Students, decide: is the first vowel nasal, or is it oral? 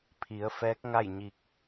oral